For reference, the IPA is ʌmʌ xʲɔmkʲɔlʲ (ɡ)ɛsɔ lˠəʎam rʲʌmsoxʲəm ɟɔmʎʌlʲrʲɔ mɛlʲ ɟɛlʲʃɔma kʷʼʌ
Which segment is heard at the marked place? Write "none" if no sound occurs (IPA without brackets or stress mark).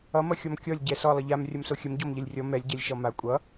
ɟ